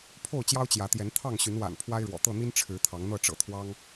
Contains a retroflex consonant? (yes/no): yes